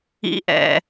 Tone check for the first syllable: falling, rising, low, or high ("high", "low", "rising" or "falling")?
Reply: low